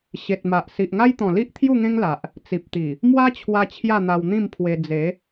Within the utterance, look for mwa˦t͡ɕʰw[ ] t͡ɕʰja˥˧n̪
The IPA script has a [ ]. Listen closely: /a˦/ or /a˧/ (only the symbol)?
a˧